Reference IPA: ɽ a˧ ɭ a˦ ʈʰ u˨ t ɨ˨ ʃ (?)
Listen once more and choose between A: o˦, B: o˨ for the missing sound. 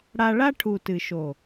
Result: B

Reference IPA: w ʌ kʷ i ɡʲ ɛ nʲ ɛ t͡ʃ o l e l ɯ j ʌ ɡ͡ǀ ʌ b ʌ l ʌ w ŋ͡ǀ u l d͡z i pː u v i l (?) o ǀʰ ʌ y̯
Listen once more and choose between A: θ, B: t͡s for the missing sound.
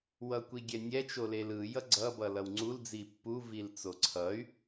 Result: B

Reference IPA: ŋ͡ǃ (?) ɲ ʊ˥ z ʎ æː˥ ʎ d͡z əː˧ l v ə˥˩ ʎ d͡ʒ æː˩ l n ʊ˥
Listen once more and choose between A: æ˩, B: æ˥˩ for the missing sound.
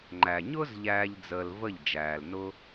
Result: A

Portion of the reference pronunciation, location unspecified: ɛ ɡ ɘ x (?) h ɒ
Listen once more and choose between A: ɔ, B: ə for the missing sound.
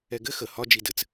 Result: B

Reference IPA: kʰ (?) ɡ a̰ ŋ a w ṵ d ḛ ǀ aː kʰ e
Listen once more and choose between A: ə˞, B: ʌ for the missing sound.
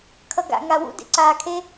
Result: B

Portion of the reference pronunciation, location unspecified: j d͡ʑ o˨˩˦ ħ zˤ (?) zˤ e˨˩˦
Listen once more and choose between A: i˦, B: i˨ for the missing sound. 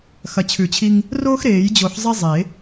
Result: A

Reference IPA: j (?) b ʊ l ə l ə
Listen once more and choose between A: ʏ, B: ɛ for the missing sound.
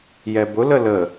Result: B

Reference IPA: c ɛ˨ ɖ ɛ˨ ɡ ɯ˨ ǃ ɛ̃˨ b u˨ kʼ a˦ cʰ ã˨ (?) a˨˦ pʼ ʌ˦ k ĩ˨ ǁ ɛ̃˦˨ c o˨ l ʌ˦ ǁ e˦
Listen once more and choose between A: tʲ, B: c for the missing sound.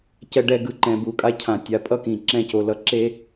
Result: A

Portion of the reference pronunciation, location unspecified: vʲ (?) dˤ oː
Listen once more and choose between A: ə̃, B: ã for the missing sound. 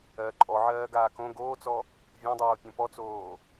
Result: B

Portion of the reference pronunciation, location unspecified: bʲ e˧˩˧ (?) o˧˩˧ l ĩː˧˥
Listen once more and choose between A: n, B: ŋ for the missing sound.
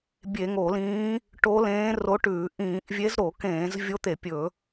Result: B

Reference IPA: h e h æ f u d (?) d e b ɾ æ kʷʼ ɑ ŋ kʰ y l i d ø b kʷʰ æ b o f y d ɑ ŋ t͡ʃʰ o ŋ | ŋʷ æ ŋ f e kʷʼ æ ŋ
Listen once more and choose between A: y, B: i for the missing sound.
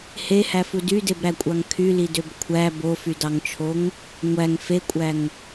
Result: A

